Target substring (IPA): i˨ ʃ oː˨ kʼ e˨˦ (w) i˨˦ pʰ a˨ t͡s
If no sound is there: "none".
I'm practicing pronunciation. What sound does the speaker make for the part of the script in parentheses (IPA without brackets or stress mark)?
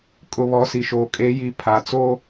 j